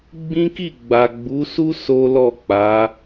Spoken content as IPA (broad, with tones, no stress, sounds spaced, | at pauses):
ɡ͡b ĩ˦ k i˦˨ ɡ͡b a˨ ɡ͡b u˨˦ s u˦ s o˦ l ɔ˦˨ k͡p a˨˦